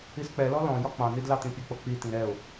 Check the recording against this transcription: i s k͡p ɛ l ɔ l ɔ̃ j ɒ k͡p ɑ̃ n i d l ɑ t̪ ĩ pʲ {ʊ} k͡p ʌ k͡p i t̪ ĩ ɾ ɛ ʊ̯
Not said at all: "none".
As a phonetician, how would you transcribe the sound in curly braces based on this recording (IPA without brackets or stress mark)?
ʊ